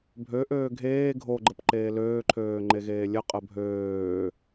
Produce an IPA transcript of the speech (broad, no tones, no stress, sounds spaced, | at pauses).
bʱ ø ʔ øː ɡʱ eː ɡʱ o ɡ͡ǃ ə p ǃ eː l øː ǃʰ øː ŋ͡ǃ e ɣ eː lʲ ə qʼ ə bʱ øː